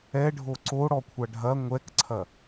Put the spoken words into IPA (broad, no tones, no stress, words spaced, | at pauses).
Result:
ɛɖʱo ǀoɽɔkʷʰa ɖʱɐ ŋʷɛkǀʰɐ